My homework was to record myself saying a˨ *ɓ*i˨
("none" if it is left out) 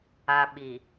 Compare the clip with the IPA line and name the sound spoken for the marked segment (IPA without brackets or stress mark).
ɓ